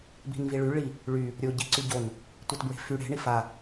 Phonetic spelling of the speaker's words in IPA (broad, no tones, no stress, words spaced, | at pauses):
bi̤nviɭy ɭi | ɭy | ɾʲo ɟiǀyɟon | tʷitbɹe̤fy ɽe̤ ɳifa